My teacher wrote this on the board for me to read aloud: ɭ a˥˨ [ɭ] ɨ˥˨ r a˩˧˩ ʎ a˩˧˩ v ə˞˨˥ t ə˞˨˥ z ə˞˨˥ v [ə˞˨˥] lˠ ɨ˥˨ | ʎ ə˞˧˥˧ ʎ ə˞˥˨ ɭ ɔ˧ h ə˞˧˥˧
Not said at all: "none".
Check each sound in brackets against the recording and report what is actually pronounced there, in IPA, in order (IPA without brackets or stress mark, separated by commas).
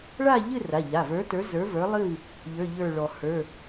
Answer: ʎ, ə˞˨˥